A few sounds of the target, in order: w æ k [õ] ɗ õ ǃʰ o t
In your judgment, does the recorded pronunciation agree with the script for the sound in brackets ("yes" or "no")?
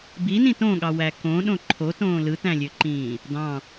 yes